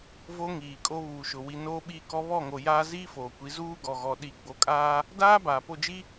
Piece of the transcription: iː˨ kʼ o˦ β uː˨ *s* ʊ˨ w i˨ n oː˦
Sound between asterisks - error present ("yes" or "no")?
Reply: yes